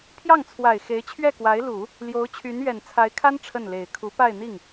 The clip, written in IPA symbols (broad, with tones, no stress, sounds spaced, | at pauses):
pʰ j ɑ˥˩ ŋ t͡sʰ w a˨˩ ɪ̯ x e˧˥ ɪ̯ t͡ɕʰ ɥ ɛ˥˩ k w a˧˥ ɪ̯ l u˨˩˦ | l j o˧˥ ʊ̯ t͡ɕʰ y˧˥ n ɥ ɛ˨˩ n t͡sʰ a˧˥ ɪ̯ kʰ a˥ n ʈ͡ʂʰ ə˥˩ n l e˨˩ ɪ̯ kʰ u˧˥ p a˥˧ ɪ̯ n̪ i˥˩ ŋ